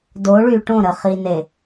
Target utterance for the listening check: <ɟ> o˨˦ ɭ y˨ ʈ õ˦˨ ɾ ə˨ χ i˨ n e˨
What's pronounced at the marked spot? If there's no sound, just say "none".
d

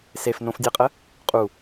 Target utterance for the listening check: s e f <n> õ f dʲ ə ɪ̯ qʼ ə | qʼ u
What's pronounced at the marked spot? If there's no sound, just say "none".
n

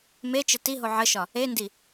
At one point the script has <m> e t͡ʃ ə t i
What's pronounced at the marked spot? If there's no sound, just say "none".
m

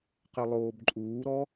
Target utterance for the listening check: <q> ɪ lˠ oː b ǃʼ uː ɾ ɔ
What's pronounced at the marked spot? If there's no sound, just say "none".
q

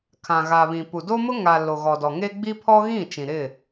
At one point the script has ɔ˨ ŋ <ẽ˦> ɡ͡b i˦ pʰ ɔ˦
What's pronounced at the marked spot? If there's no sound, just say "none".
e˦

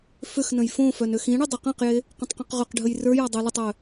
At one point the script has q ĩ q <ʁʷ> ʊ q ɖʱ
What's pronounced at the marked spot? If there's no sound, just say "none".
ʁ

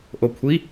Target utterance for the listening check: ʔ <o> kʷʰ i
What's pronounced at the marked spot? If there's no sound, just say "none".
o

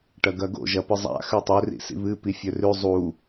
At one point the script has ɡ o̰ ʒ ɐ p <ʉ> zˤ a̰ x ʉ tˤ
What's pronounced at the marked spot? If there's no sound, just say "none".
ɨ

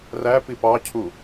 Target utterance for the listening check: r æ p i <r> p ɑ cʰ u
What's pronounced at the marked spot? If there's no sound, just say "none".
none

